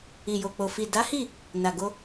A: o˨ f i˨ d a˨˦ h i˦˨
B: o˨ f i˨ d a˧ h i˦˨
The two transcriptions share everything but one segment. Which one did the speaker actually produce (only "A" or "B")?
A